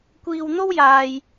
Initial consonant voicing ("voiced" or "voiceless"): voiceless